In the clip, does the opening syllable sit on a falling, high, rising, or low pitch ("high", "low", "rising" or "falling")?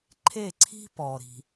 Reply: falling